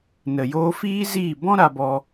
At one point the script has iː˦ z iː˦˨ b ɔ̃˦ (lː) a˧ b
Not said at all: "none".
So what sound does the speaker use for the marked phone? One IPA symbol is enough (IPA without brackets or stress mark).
ɾ